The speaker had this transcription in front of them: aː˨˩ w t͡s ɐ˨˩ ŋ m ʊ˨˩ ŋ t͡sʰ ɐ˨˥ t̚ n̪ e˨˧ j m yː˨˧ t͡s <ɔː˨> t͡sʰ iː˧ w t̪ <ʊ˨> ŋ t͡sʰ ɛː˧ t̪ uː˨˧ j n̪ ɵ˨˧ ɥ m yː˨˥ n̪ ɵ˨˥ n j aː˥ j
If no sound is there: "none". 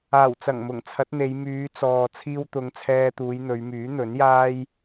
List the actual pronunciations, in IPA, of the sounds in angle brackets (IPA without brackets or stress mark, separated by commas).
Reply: ɔː˨, ʊ˨˧